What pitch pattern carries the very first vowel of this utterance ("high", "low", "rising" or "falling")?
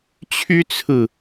high